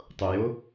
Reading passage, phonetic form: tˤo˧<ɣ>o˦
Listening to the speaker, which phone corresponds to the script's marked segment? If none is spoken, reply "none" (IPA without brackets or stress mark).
j